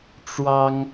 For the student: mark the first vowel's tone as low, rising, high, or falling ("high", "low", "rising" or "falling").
high